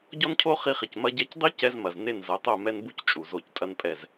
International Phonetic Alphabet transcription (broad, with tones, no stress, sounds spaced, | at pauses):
ɟ ɔ˦ n cʰ o˦ χ i˧ χ i˨ c m ɐ˧ ɟ ɛ˧ c dˤ i˦ c ɛ˧ z m ɐ˨ z n e˦˨ n z ɐ˨˦ tˤ o˦˨ m ɛ˦ n b u˦ c t͡ʃʼ u˨ z o˧ c tʼ ɐ˦ n pʼ ɛ˦˨ z